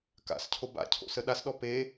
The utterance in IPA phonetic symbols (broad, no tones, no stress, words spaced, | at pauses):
ka̰scʰo ba̰cʰo̰sə ɗasɗɔ pe